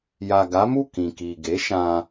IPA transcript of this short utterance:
ja˨ ɡa˨˦mu˦˨ kĩ˨ki˨ ɡe˨˦ʃã˧

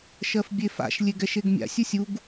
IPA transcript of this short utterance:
ʃɜfbʲefa̰ʃ lʲeɡɛʃeɡmʲa̰sʲ usʲuɡ

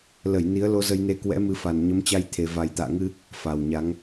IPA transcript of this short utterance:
lə˧˩j ni˨˦ə̯lo˧ zə˧jne˧ kwɛ̰˧˥mɨ˨˦fa˨˩n ɲə˨˦mt͡ɕa˧jt̪ʰe˨˩ va˨˩jt̪a̰ː˧˨ŋɨ˧ | fa˨˩wɲa˨˦ŋ

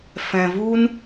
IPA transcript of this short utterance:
fɛ̃˨vu˦n

